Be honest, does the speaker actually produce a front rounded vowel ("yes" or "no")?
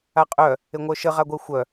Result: yes